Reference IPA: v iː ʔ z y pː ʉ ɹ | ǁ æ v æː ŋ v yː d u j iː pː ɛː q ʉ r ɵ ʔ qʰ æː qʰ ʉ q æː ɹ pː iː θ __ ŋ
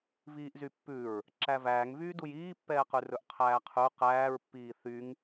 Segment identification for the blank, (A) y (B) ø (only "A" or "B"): A